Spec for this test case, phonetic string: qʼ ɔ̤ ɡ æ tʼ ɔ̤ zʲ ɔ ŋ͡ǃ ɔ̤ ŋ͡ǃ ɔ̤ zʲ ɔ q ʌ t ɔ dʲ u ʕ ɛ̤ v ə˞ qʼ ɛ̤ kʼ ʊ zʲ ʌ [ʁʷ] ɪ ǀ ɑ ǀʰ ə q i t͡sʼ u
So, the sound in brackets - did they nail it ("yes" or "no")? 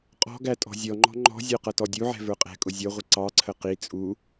yes